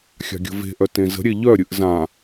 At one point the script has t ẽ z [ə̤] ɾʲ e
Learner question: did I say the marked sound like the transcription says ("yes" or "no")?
yes